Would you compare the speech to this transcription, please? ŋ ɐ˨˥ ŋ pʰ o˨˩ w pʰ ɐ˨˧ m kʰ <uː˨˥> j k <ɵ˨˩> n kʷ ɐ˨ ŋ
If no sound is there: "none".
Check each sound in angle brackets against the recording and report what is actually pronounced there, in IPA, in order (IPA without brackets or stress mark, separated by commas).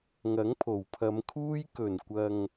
uː˧, ɵ˨˩